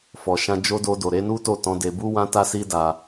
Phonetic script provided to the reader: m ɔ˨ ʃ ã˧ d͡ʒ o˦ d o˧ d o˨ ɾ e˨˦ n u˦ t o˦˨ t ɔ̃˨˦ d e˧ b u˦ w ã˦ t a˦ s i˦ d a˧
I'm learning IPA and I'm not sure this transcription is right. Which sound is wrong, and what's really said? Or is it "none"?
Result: m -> f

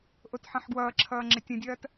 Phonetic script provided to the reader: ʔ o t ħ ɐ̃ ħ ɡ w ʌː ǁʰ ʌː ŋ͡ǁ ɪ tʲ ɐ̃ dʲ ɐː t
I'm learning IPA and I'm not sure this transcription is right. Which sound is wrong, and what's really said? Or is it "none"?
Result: none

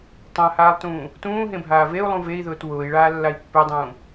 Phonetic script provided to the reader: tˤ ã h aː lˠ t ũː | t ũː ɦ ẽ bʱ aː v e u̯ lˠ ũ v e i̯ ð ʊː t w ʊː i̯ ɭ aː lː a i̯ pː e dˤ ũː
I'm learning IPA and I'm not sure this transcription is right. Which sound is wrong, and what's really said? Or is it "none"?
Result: none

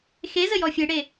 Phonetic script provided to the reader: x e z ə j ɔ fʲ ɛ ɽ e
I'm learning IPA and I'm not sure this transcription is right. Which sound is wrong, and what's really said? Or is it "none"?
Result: ɛ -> e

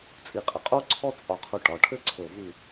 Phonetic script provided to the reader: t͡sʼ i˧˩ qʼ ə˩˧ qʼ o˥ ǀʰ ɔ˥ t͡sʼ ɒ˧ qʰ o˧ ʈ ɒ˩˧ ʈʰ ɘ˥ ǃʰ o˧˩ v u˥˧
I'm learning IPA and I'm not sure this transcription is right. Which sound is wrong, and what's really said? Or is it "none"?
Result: ǃʰ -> ǀʰ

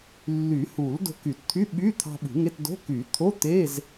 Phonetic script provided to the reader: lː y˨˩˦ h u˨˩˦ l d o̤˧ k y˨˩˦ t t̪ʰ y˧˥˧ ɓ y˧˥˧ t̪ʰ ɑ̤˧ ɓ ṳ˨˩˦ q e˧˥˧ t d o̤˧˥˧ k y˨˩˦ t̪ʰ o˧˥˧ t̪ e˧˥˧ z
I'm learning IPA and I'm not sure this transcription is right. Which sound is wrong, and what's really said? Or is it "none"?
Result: q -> ŋ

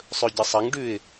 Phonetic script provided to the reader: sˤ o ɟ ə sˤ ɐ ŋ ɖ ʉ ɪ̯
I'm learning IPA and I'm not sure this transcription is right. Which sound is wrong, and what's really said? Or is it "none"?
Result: o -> ɵ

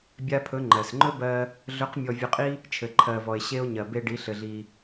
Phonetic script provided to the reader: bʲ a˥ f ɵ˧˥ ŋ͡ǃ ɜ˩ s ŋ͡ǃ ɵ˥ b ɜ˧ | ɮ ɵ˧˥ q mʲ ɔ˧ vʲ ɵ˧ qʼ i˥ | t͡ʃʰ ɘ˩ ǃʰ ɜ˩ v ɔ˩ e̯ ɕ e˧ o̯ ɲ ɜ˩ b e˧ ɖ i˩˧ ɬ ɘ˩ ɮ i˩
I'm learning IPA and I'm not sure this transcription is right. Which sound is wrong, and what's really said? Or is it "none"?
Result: f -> pʰ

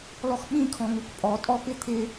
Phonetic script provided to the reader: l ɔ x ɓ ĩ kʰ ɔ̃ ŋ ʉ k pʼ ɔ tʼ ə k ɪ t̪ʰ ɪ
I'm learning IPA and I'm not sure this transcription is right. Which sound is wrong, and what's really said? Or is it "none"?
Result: ə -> ɔ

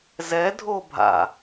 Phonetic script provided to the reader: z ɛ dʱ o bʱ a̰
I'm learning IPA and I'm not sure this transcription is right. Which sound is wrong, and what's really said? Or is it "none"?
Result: none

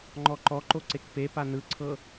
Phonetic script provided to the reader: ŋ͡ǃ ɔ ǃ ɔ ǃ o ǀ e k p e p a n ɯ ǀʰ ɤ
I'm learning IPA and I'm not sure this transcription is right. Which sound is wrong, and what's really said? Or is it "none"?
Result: none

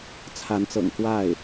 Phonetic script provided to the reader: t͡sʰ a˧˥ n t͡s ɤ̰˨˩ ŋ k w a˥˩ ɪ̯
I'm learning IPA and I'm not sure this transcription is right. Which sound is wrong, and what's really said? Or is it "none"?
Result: none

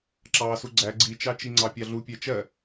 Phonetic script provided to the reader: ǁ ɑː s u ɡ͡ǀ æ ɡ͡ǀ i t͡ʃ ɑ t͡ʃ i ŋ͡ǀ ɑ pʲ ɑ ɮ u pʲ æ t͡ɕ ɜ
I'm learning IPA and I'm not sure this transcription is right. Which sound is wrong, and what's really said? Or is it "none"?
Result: t͡ɕ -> t͡ʃ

